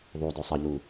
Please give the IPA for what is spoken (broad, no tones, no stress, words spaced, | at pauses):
ðˤudø sˤəʎu